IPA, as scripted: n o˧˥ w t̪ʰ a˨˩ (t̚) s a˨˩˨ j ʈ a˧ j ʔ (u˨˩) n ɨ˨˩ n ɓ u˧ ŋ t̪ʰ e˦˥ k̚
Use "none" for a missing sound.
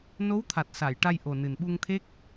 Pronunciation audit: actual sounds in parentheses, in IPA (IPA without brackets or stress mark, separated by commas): t̚, o˨˩